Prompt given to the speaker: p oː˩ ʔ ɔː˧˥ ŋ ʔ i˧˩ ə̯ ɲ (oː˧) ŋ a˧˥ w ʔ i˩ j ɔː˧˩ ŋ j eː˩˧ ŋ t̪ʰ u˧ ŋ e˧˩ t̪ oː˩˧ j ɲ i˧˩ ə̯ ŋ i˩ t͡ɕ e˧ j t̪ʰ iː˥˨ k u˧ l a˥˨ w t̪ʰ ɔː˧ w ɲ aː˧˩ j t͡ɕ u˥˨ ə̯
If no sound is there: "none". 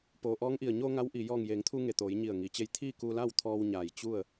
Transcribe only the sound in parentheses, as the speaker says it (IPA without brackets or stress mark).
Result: oː˧